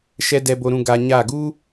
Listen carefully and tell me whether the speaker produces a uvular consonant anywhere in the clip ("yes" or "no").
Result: no